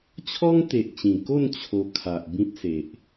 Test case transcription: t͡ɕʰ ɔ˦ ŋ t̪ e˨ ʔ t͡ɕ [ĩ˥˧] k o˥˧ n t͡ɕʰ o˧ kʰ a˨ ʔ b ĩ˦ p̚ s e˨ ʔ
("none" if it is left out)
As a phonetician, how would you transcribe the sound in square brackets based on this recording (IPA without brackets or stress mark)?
ĩ˨˩